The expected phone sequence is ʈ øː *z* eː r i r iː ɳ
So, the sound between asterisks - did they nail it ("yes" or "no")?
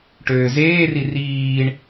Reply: yes